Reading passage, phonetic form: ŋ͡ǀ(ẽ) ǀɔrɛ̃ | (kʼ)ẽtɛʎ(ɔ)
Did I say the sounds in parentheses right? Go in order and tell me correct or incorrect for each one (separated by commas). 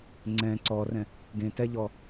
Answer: incorrect, incorrect, correct